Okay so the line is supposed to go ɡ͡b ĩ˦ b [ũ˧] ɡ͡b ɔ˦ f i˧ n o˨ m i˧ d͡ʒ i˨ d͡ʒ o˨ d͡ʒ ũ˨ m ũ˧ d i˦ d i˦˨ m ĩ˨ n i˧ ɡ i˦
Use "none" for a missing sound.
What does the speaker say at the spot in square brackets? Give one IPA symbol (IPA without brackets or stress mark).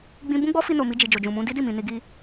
ũ˦